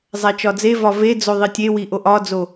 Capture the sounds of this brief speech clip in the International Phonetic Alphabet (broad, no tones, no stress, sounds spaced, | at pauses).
zˤ æ t͡ʃ ɒ d͡z e v ɒ v e d͡z o ðˤ i tʲ e w i ʔ o ʔ ɒ d͡z o